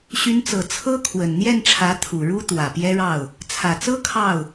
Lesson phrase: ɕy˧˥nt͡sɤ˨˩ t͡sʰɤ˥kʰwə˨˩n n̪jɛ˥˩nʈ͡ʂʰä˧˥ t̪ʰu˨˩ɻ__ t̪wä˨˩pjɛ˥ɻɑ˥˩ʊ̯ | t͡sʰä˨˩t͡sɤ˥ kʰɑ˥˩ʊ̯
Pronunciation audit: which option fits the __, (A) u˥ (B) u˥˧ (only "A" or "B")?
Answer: A